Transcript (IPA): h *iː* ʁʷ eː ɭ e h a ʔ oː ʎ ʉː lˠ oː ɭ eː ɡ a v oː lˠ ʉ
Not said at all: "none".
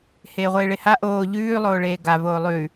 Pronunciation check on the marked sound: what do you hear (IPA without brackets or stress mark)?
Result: eː